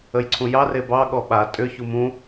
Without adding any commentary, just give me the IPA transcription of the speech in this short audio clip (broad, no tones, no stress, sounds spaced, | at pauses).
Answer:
ə j ǀʰ ũ j ɑ r e b ɑ ɠ ɔ ɓ a tʼ ʏ ç u m ũ